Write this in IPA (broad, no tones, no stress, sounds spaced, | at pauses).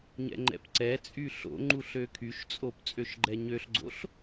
ɲ ɛ̰ ŋ͡ǃ ɛ̰ p ǀ ɛ t͡sʼ y ɬ o̰ ŋ͡ǃ u ɬ ø kʰ y ʃ t͡sʼ o p t͡sʼ ø ʃ ɡ͡ǃ ɛ ɲ ø ɬ ɡ͡ǀ o̰ ɬ